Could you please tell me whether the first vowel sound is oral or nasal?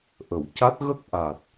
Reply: oral